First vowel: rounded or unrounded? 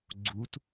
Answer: rounded